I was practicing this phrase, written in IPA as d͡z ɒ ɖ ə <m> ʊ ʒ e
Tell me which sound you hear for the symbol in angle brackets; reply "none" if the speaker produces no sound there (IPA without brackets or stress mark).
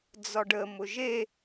m